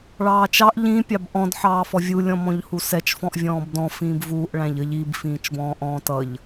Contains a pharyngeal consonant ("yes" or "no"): yes